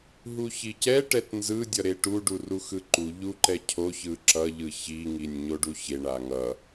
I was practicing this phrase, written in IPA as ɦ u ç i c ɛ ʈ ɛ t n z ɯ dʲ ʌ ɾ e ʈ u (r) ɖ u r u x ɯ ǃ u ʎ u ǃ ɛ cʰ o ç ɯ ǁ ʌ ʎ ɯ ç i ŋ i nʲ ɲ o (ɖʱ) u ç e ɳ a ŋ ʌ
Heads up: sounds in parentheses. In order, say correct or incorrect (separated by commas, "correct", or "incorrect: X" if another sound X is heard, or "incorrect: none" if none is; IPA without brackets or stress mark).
incorrect: none, incorrect: ɖ